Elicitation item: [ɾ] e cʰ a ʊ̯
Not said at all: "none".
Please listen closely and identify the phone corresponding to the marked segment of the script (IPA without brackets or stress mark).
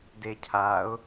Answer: d